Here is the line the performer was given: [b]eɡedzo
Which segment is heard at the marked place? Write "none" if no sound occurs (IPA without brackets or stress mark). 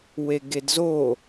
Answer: w